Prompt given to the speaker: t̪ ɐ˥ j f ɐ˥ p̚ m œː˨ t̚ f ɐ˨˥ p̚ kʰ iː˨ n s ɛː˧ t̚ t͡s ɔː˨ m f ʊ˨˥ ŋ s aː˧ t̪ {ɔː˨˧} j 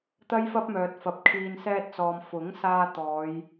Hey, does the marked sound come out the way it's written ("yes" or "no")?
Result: yes